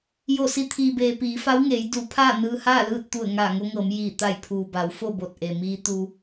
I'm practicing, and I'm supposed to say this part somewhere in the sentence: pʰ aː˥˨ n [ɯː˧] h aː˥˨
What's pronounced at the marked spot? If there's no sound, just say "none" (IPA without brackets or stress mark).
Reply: ɯː˧